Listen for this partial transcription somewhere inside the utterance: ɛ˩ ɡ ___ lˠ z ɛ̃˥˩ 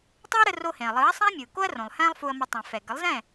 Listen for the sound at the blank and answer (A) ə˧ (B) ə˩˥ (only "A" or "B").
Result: B